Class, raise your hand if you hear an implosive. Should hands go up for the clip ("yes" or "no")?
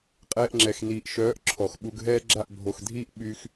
yes